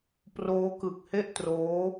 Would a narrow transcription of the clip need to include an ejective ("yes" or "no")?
no